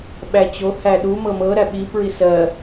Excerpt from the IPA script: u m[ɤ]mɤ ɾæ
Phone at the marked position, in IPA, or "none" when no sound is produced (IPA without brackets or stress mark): ɤ